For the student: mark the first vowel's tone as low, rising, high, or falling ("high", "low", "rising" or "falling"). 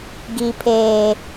low